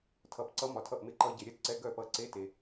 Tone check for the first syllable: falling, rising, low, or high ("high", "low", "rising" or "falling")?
low